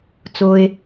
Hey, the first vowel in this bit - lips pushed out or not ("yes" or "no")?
yes